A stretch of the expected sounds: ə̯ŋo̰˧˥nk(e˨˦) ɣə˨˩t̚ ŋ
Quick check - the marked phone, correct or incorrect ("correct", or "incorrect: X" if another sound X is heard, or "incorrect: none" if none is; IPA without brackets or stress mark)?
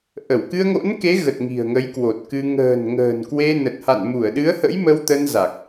correct